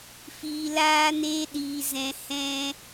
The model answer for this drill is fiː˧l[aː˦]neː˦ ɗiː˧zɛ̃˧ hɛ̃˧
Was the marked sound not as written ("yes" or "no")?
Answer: no